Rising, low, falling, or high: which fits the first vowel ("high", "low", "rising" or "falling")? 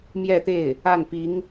falling